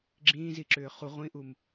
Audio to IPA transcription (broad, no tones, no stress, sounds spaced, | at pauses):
ɡ͡ǁ ĩː z i ǁ ʏː χ u ʁʷ ĩ ʔ u m